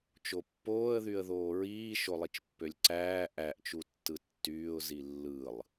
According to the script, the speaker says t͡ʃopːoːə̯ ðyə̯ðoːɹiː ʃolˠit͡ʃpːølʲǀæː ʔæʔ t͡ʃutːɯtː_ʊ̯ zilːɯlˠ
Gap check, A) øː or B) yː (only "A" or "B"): B